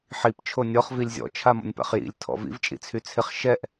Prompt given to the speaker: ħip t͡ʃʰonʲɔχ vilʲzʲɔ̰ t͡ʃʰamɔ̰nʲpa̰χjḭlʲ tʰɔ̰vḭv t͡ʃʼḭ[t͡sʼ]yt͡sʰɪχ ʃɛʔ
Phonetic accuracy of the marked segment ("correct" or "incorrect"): incorrect